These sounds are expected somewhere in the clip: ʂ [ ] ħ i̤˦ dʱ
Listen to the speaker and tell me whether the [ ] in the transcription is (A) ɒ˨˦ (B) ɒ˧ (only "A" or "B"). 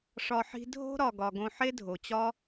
B